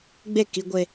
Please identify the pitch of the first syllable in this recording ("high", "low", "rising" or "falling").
falling